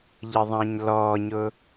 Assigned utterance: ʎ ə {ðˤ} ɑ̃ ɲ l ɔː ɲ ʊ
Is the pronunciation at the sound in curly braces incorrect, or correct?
correct